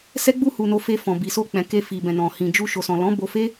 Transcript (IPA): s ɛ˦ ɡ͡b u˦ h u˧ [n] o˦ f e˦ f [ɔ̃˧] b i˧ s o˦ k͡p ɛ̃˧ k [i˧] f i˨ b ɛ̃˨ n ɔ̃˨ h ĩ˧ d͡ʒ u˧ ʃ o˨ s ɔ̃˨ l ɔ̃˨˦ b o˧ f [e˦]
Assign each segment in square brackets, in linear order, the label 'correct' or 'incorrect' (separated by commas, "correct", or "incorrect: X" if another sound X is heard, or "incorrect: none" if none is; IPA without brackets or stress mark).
correct, correct, incorrect: e˧, correct